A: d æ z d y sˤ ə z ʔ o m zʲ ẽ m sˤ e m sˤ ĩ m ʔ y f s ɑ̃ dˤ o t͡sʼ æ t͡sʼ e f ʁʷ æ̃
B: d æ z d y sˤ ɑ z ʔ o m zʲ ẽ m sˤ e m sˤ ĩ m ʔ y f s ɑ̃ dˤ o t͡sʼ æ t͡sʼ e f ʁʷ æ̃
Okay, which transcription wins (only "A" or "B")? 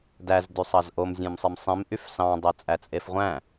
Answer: B